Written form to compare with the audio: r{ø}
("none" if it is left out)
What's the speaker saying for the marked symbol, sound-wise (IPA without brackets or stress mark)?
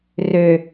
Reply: ø